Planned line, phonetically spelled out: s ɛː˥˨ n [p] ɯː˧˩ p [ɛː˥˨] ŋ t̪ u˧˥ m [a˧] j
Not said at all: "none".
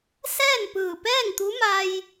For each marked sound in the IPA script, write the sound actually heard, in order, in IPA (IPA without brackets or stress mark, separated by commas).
p, ɛː˥˨, a˧